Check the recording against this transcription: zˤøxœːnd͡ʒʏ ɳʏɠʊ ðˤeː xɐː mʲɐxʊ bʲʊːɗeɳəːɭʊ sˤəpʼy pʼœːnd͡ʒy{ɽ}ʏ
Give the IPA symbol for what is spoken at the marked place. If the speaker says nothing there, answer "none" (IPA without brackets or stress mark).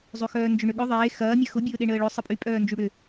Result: ɽ